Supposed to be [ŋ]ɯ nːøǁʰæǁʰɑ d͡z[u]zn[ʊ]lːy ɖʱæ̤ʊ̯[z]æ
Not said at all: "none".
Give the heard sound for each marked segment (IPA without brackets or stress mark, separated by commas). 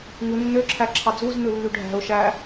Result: ŋ, u, ɯ, ʃ